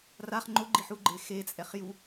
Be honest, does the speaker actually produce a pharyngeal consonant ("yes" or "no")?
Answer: yes